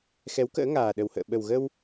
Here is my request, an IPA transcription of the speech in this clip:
x ɛ˨˦ w k ə̰ː˧˥ ŋ aː˨˩ ɗ ə˨˩ w h ə̰ː˧˨ ɓ ə˨˩ w ɣ ə˧ w

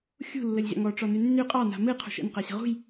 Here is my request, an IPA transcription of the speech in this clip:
xʲ ṳ lː ə lʲ ʑ a̰ ŋ ɔ ʈ͡ʂ ɔ n y nː y qʼ ɑ n a̤ m ɨ qʰ ṳ ʃ ə̰ n q a ɕ ə̤ ʁ ṳ j

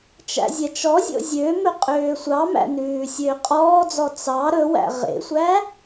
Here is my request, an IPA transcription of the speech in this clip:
t͡ʃ æ̰ zʲ ɛ t͡ʃ ɔ zʲ o̰ zʲ ø m ɵ qʼ øː sʷ ɑ m æ̰ n ʉː sʲ øː qʼ ɔː d͡z ɔ t͡s ɑ ɾ ɵ w æ̰ ʁ ḛ sʷ æ

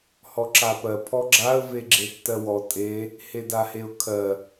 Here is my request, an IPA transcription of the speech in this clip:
h ɔ ǁ a p ɜ pʰ ɔ ɡ͡ǁ a ə̯ v e ɡ͡ǁ e tː ɜ w ɔ tʼ e | h e d a h e ʊ̯ kʰ ɜ

